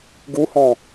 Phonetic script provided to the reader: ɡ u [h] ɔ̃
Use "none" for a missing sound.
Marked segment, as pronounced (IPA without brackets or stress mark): h